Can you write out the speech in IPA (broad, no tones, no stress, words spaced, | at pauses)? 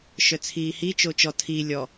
ʃœt͡sʰiːhi t͡ʃot͡ʃɔ tʰi lʲɔ